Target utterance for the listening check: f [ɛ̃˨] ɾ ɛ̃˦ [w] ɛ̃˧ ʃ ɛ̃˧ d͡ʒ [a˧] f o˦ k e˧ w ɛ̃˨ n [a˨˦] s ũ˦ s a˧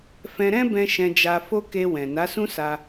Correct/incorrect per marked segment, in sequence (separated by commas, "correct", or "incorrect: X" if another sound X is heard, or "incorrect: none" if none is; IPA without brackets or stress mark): incorrect: ɛ̃˧, incorrect: b, correct, correct